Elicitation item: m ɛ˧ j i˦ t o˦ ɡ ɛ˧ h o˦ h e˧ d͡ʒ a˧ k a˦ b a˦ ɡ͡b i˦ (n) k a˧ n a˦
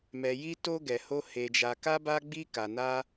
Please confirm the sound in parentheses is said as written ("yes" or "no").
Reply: no